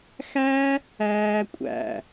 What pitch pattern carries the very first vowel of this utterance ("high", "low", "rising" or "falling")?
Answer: high